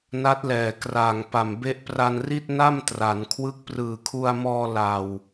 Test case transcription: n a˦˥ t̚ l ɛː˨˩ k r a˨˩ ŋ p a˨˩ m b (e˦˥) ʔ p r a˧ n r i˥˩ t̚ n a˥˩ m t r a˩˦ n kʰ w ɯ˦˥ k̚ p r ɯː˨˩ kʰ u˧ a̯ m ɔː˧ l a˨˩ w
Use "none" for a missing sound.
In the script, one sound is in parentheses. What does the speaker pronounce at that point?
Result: e˦˥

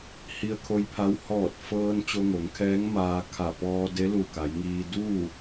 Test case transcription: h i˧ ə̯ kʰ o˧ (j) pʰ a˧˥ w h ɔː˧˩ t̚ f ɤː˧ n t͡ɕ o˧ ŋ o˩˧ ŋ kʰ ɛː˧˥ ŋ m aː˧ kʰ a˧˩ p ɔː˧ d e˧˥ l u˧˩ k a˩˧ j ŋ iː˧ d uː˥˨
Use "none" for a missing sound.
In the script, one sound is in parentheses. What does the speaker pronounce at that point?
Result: j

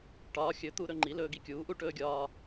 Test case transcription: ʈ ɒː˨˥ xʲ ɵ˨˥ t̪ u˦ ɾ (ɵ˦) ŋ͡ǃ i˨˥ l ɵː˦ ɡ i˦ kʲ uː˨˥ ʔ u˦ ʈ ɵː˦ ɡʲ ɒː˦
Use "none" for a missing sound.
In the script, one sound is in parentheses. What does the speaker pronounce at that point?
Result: ɵ˦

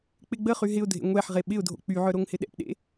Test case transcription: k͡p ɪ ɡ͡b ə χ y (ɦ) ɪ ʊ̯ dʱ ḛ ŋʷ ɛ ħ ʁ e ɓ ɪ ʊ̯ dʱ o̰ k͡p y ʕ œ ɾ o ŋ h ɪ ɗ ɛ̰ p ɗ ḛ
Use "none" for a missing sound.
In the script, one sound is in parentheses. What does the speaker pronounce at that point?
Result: ɦ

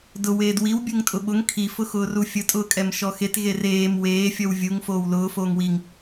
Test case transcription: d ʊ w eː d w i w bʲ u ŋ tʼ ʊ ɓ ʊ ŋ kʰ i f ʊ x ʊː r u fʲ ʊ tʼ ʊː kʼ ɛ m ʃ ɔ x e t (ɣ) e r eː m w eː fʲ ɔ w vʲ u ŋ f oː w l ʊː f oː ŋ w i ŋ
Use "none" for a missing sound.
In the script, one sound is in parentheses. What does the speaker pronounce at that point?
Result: ɣ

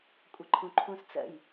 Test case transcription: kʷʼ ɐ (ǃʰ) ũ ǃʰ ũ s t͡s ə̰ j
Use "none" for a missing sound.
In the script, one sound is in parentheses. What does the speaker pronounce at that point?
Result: ǃʰ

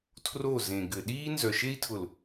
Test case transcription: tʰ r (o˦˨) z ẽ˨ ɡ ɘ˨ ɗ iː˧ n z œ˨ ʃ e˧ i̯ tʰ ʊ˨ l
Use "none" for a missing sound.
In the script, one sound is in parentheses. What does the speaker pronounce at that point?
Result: o˦˨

